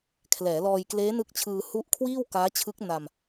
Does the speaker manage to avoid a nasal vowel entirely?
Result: yes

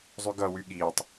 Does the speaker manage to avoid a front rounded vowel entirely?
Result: no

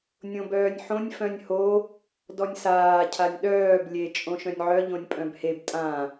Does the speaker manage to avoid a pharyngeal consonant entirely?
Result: no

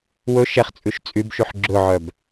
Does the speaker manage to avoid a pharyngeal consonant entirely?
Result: no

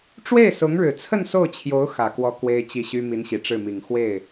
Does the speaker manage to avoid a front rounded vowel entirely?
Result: no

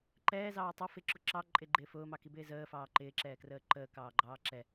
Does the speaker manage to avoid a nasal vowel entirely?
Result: yes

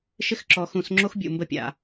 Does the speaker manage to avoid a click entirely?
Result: no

